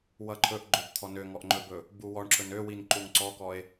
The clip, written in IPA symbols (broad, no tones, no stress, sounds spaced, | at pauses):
w ʌ ǃʰ ɵ ʔ ɡ͡ǃ ø b t̪ʰ ɔ n ø ŋ ɔ ʔ ŋ͡ǃ ɵ b ɵ | b u w ɔ ɳ ǁ ɵ n ø w i n ǃ u ŋ ǀ ɔ k ɔ e̯